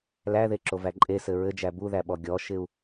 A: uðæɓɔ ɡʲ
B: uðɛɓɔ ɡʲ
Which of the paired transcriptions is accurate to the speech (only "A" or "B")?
A